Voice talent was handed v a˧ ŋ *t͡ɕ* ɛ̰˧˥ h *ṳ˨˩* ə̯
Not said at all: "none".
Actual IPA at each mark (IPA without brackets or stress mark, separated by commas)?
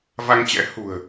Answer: t͡ɕ, ṳ˨˩